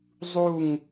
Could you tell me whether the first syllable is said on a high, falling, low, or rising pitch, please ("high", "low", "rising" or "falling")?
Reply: falling